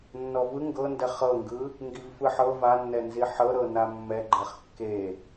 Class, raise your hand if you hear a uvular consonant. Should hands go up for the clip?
yes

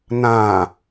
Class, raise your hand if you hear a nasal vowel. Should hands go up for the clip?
yes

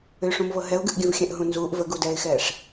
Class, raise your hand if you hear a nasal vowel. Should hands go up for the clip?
yes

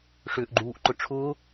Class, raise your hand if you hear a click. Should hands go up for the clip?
yes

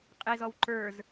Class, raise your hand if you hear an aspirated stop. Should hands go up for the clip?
no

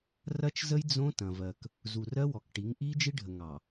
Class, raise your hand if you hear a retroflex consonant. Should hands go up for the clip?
yes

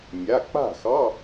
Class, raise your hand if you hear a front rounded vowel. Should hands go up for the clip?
no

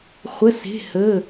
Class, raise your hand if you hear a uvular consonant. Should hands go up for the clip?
yes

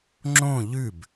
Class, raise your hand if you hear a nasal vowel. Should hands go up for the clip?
yes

